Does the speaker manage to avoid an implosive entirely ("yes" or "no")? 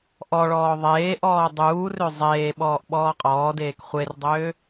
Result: no